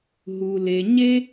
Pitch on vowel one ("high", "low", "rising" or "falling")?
low